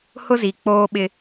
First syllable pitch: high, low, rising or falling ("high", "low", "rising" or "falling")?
high